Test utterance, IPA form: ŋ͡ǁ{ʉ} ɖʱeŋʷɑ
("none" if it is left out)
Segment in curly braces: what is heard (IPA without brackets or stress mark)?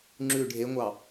ʉ